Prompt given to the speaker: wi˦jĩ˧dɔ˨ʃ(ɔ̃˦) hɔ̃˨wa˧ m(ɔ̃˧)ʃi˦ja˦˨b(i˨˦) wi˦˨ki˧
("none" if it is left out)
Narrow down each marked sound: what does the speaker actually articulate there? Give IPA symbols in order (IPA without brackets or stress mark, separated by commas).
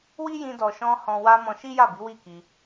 ɔ̃˧, ɔ̃˧, i˨˦